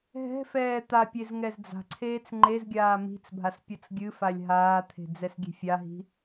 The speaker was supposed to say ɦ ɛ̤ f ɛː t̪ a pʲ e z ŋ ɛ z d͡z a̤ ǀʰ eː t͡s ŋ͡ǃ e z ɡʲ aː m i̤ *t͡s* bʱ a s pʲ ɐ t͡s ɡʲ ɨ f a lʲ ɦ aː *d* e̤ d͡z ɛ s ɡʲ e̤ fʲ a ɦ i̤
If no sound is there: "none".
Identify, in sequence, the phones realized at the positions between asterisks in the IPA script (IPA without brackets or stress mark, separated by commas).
t͡s, t̪ʰ